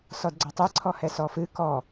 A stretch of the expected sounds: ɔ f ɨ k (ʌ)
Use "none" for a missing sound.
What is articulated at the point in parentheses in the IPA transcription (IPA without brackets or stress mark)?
ɔ